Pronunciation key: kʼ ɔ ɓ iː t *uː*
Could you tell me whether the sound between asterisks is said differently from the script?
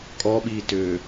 yes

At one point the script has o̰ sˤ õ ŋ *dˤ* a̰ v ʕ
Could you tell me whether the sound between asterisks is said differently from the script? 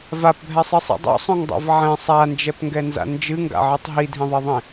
no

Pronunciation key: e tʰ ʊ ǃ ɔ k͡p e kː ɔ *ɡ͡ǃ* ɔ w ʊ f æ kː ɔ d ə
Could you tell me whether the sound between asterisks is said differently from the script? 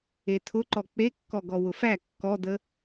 yes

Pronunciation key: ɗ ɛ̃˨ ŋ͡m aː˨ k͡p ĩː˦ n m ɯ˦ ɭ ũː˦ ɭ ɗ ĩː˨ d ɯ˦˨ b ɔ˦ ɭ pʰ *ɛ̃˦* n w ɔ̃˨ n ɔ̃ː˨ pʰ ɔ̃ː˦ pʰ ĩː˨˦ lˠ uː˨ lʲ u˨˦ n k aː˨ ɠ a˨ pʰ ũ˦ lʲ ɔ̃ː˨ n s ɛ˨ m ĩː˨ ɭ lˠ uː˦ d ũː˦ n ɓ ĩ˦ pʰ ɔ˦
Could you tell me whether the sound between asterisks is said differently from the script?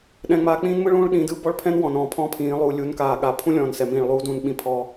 no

